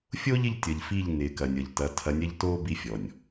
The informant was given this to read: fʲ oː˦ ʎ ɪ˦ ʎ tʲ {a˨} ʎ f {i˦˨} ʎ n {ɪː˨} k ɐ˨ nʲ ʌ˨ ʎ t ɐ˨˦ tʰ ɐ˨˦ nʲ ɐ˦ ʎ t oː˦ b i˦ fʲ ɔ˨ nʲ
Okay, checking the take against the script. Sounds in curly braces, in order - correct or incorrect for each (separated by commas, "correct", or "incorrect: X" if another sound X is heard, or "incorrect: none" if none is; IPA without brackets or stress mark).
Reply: incorrect: ʌ˨, correct, correct